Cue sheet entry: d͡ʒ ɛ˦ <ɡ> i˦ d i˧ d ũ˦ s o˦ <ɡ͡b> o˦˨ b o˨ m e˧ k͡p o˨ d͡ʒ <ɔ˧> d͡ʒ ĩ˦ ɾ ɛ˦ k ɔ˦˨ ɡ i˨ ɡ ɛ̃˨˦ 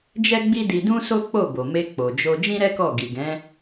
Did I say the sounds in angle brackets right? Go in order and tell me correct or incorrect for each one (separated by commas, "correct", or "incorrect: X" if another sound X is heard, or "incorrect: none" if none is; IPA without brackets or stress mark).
incorrect: ɡ͡b, incorrect: k͡p, incorrect: o˧